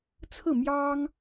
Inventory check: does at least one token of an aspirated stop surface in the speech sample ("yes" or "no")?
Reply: yes